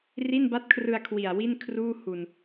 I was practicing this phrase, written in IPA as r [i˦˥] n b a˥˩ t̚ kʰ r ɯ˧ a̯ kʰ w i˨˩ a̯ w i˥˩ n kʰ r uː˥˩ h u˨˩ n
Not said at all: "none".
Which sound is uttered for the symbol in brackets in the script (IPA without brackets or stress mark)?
i˥˩